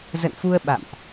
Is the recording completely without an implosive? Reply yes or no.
no